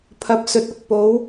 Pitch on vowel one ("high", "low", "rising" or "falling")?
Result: low